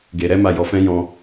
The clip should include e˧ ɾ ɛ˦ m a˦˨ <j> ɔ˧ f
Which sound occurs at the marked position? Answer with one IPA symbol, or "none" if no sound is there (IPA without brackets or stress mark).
j